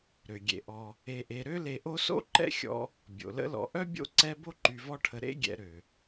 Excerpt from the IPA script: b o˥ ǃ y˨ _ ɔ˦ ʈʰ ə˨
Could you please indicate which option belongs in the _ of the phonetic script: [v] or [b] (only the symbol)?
v